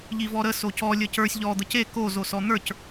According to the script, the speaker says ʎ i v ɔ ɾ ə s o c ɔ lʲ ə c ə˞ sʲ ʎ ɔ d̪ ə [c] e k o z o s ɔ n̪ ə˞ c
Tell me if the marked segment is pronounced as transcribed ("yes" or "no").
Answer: yes